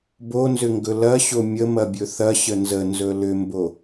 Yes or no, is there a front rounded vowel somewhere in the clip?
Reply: yes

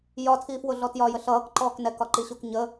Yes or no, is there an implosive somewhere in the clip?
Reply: no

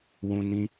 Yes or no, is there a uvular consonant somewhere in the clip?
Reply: no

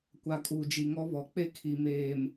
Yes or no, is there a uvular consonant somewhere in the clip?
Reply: no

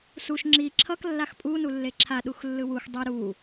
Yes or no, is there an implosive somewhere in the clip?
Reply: yes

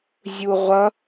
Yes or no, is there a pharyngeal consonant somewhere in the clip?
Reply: no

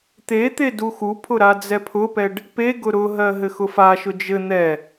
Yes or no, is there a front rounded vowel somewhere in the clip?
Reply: no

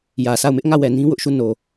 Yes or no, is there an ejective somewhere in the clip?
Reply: no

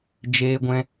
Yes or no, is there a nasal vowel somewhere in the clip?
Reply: yes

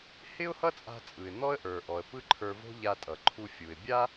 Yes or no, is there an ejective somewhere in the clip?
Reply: yes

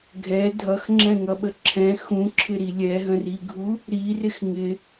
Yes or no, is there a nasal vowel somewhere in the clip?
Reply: yes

